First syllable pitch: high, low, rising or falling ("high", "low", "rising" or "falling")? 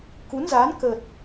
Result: rising